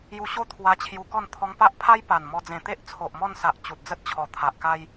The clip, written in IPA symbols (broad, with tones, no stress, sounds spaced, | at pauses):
j u˧ ɕ o˥˧ t̪ʰ w a˧ t͡ɕʰ j u˧ k ɔ˥˧ n t̪ʰ ɔ˧ ŋ p a˦ ʔ pʰ a˦ j p a˨˩ n m ɔ˧ d͡z ẽ˨˩ t̪ e˦ ʔ t͡sʰ o˨ ʔ m ɔ˥˧ n s a˨ ʔ t͡ɕ u˨ t̚ d͡z ə˦ t̚ t͡ɕʰ ɔ˨˩ t̪ʰ a˨ ʔ k a˧ j